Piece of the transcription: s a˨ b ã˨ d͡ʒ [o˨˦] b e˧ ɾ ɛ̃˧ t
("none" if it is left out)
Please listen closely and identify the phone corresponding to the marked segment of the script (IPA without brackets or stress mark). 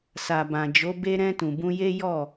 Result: o˨˦